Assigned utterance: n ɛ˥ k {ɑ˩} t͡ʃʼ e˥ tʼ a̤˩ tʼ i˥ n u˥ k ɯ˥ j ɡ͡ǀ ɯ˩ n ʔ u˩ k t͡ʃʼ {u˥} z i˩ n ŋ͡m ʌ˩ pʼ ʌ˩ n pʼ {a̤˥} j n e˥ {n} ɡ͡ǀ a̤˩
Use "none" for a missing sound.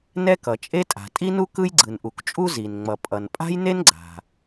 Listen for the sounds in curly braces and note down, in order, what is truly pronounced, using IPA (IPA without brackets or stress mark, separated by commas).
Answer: ʌ˩, u˥, a̤˥, n